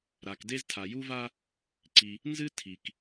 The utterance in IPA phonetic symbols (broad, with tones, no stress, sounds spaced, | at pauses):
ɾ a˩ k d e˥ z tʰ a˩ j u˥ v a˥ | ǀ i˩ | n z ɨ˥ tʰ i˩ k